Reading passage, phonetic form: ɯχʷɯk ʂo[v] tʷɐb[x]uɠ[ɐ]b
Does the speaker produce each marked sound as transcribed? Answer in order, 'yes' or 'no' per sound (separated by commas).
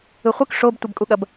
no, no, yes